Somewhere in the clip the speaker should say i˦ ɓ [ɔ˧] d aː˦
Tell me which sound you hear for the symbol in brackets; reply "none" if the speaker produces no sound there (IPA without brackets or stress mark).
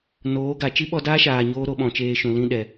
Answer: ɔ˧